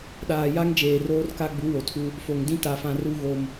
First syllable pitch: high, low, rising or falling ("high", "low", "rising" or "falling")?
low